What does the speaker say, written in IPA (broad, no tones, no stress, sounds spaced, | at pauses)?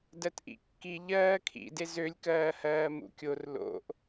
d ɜ t ʔ ḭ kː i ʎ ɜː kʰ ḭ d e z ø lʲ k ɜː h ɜː m ṵ kʲ o r l o̰ ʔ